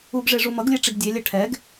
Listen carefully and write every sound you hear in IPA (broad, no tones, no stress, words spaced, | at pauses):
uɡʐe ʐumʌɡlʲe ʈ͡ʂiɡdʲelʲɛ ʈʰɛɡ